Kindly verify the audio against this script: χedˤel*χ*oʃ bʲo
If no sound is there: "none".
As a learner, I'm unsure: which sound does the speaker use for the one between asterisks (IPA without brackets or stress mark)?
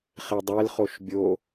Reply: χ